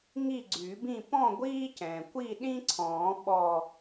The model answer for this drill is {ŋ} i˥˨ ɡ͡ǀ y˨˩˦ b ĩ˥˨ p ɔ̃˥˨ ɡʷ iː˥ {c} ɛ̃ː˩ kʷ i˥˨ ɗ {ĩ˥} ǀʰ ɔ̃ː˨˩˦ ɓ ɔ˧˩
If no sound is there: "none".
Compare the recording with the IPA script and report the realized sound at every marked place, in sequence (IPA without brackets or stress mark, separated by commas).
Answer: ŋ, c, ĩ˥